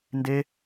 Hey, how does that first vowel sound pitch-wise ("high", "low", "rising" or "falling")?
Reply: high